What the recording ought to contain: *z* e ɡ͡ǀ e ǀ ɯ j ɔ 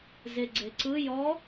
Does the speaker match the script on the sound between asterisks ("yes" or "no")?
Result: yes